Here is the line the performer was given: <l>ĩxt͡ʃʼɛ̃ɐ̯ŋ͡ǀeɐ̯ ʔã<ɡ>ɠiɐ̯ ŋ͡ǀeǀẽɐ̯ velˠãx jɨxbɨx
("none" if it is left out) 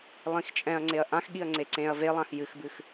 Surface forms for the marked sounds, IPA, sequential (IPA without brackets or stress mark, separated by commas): lˠ, x